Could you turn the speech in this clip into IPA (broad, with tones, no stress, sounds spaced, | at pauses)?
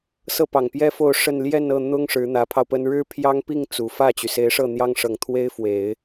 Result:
s ɤ˥˩ p ɑ˨˩ ŋ p j ɛ˥ f o˥˧ ʊ̯ ʂ ə˥˧ n l j ɛ˥˧ n ɤ˥˩ n̪ ʊ˥ ŋ ʂ ɻ̩˧˥ n̪ ä˧˥ pʰ ɑ˧ ʊ̯ p ə˥ n ɻ ɻ̩˥ pʰ j ɑ˥ ŋ p i˥˩ ŋ t͡s u˨˩ f ä˥˩ t͡ɕ y˩ s e˧˥ ɪ̯ ʂ ɤ˥˩ n̪ j ɑ˥ ŋ ʂ ɤ˨˩ ŋ t̪ʰ w e˥ ɪ̯ f w e˨˩˦ ɪ̯